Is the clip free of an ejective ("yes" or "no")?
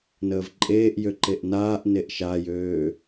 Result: no